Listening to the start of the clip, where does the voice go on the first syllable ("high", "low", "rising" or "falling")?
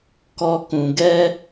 high